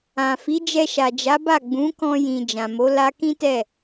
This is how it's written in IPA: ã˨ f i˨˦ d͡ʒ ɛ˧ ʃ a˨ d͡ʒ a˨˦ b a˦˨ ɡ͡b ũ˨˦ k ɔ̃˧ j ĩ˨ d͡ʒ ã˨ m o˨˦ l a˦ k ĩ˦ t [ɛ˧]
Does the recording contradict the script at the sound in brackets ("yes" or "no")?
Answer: yes